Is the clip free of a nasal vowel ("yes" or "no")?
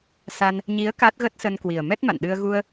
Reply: yes